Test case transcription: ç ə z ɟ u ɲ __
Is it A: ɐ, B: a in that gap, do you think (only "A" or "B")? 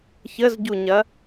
A